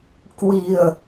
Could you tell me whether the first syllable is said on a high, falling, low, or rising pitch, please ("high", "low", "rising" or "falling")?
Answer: low